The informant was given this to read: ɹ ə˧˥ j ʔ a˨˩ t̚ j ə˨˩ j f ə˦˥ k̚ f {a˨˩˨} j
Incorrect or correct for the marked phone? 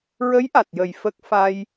incorrect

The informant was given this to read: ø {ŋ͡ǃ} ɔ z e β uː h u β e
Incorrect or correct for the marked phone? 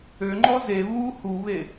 correct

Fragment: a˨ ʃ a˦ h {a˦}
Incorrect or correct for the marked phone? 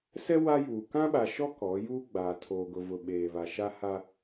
correct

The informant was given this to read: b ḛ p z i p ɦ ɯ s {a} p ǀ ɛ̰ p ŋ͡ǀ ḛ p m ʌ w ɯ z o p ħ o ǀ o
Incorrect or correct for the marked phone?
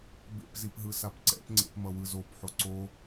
correct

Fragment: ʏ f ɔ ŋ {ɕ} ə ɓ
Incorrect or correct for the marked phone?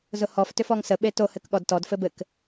incorrect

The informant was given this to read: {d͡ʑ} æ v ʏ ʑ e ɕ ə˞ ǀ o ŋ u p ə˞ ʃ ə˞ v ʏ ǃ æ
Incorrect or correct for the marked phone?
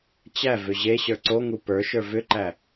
incorrect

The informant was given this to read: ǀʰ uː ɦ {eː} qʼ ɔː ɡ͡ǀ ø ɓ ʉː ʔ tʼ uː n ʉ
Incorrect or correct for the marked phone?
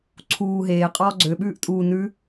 correct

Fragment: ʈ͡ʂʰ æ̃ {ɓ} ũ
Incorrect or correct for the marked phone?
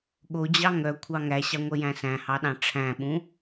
correct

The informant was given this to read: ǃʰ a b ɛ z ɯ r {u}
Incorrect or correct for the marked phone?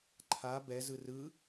incorrect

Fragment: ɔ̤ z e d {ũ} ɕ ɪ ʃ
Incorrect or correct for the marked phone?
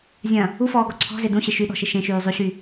correct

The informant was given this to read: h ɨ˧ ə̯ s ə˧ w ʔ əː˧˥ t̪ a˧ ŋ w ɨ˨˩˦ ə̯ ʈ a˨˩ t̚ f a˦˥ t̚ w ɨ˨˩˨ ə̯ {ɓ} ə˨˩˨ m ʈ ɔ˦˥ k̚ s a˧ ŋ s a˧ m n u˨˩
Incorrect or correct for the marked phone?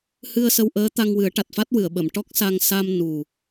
correct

